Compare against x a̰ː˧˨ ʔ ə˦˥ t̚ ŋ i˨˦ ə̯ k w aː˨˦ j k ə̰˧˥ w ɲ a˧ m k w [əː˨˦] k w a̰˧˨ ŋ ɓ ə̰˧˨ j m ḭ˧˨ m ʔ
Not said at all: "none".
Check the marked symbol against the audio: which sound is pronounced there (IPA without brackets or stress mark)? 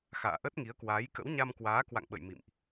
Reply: aː˨˦